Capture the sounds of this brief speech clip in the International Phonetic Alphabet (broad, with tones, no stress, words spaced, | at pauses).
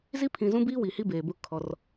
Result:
zi˦pʰĩ˨zũ˦biː˦ wi˨hi˦ beː˨bʊ˦ kʰɔ˦r